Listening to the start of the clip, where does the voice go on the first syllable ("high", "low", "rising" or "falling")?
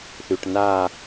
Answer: low